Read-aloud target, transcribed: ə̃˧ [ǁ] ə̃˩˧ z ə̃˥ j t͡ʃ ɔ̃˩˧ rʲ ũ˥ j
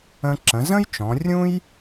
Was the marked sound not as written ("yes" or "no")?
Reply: no